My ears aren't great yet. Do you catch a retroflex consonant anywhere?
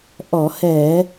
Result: no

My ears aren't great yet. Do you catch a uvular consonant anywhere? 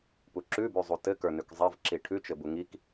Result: no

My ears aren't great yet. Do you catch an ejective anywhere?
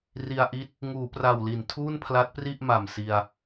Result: no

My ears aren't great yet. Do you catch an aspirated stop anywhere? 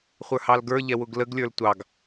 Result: no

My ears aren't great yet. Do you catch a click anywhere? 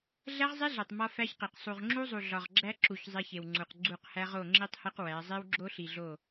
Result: yes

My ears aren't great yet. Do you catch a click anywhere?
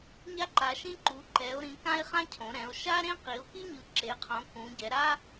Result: yes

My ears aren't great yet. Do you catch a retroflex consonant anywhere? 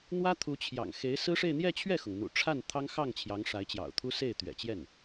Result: yes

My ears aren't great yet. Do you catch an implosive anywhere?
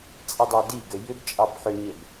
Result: no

